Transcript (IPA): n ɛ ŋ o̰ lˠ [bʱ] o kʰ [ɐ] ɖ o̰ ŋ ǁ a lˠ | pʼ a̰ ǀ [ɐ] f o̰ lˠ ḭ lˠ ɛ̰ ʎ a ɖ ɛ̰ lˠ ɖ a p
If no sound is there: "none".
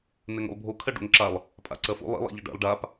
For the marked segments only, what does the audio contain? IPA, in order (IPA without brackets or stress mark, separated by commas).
bʱ, ɐ, ɐ